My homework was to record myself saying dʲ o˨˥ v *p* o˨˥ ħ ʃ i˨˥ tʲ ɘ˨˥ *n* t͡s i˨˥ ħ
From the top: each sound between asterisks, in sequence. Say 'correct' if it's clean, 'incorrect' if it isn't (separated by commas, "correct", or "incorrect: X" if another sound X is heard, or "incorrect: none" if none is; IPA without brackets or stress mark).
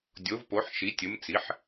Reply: correct, incorrect: m